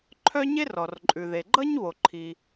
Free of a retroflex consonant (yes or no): yes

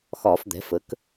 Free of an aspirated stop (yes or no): yes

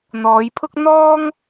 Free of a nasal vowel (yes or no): yes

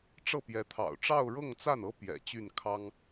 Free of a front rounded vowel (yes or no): no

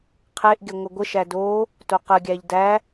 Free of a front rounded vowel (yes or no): yes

